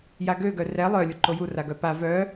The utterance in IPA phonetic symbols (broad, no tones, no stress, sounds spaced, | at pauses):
j a ɡ ø ɡ œ r ɛ lˠ œ lʲ u ǃ o j u r a ɡ œ p a v œ